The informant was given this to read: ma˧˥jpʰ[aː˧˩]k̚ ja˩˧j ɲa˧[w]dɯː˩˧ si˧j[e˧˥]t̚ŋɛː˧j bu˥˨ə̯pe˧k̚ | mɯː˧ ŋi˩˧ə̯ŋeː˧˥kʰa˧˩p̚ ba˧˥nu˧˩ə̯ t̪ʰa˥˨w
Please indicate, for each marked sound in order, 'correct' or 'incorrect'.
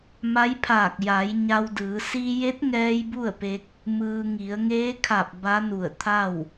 correct, correct, correct

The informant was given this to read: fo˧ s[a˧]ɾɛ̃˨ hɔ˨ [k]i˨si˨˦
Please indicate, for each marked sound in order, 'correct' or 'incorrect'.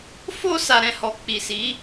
incorrect: a˨, incorrect: k͡p

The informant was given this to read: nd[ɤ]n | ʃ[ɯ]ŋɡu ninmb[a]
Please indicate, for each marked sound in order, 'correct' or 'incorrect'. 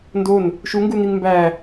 incorrect: o, incorrect: u, incorrect: æ

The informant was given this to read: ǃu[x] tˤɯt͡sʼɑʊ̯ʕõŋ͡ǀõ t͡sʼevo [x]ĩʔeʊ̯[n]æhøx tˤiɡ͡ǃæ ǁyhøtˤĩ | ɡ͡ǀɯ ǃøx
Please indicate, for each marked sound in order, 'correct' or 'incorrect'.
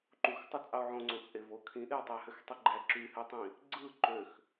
correct, incorrect: kʰ, incorrect: tˤ

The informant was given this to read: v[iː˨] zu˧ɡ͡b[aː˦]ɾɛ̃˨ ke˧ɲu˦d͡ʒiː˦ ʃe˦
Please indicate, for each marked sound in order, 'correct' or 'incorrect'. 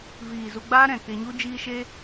correct, correct

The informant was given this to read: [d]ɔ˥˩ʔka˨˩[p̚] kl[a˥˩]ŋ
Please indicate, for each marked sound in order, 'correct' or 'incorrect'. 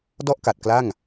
correct, incorrect: t̚, correct

